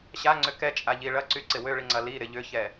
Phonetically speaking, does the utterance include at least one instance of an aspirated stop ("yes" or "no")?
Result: no